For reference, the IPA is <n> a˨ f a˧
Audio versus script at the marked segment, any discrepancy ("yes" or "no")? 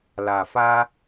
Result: yes